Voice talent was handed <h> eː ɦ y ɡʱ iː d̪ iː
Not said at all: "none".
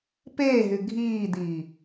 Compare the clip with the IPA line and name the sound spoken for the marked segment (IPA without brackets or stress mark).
p